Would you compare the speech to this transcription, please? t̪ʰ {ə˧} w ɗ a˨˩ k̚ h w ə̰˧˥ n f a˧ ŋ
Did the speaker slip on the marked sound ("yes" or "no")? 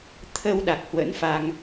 no